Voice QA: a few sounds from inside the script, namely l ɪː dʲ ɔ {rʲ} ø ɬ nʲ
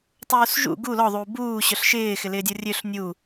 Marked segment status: correct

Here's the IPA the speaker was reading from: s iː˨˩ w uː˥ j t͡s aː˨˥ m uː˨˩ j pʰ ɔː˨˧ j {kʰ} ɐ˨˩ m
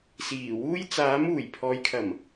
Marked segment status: correct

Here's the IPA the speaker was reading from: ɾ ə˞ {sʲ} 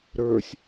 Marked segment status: correct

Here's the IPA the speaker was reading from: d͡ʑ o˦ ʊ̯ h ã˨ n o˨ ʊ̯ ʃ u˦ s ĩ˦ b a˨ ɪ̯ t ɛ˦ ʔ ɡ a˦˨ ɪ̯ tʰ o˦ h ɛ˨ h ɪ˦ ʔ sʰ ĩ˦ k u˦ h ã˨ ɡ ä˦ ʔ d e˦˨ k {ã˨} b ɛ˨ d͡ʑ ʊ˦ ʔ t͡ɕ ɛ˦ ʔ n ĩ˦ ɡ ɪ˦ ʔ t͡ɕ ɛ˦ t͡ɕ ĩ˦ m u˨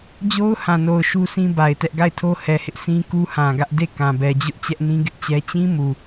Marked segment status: correct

